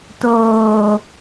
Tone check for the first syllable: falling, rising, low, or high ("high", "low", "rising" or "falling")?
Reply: low